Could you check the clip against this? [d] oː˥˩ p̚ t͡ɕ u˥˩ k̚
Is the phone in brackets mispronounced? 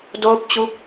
no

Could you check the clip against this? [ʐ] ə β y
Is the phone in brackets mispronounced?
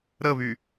yes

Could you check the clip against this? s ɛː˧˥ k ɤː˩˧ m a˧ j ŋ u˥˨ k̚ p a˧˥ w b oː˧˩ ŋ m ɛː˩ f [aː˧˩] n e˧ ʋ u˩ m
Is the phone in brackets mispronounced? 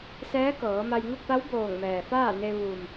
yes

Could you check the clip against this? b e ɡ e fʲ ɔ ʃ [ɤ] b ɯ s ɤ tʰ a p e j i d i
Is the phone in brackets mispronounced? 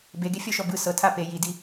yes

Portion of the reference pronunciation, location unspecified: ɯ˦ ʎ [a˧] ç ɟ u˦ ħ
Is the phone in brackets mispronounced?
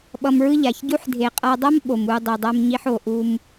yes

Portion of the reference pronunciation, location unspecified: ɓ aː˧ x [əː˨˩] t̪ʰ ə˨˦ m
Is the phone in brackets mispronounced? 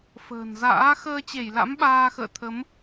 yes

